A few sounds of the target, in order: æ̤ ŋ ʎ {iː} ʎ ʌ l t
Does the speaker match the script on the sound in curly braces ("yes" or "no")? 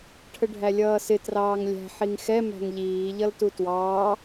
yes